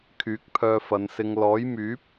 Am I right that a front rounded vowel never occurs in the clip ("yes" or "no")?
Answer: no